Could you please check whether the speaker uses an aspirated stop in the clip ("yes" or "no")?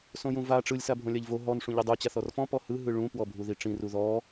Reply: no